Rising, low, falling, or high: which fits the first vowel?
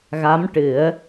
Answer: rising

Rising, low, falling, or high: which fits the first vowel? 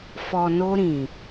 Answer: low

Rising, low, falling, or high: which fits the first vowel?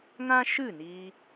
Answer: high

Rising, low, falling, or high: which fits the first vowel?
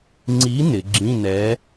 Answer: rising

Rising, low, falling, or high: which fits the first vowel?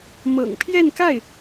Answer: low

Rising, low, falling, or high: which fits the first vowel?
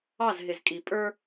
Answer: falling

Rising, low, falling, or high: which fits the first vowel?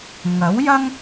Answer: rising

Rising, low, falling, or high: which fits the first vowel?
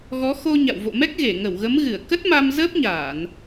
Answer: rising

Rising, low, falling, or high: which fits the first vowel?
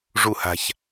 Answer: falling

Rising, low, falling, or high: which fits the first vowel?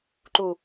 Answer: low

